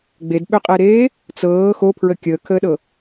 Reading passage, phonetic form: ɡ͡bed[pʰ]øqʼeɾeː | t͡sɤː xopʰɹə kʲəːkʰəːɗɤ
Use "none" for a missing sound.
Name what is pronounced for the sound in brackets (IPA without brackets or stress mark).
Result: ɓ